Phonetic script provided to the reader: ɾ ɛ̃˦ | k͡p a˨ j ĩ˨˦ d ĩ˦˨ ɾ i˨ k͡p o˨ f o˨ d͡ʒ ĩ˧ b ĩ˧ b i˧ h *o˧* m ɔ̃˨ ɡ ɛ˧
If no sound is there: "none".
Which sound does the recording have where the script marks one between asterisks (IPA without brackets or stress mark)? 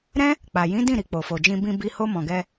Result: o˧